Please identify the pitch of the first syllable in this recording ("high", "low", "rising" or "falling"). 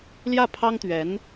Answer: falling